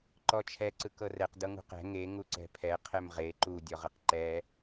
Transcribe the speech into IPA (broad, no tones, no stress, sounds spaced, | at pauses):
ǃ ɔ t͡ʃʰ ɛ ǀ ɯ k ɤ r ɛ q d ɤ ŋ ṳ q ɛ̤ ŋ e ŋ u ǀ ɛ̤ pʰ ɛ qʰ ɛ m ʁ e ǃ u dʲ ɔ ʁ ɯ q ǃ ɛ